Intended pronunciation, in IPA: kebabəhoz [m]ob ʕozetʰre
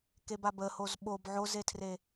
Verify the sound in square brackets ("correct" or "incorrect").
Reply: incorrect